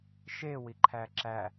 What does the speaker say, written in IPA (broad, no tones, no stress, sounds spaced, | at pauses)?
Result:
ʃ e w i ǃʰ æ ǁ æ